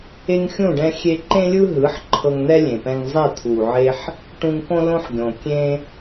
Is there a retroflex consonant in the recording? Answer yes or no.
yes